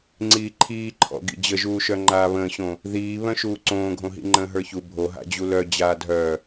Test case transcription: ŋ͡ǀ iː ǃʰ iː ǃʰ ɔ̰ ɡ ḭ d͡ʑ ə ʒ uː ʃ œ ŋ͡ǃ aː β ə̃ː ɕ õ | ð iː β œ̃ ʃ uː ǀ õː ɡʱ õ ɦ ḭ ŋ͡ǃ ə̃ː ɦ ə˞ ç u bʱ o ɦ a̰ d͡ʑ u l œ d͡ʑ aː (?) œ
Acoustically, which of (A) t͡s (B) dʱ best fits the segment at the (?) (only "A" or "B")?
B